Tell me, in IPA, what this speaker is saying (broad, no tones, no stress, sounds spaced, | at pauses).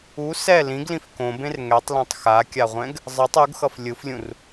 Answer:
u s ɛ l ĩ ɡ l ĩ f k õ b ẽ r ŋ ɛ tˤ l ã tˤ x a kʲ a ʁʷ ɛ̃ ɡ | zˤ ɯ tˤ u ɡ x ʌ f lʲ ɯ f lʲ ũ r